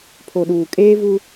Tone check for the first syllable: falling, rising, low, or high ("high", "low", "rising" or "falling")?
low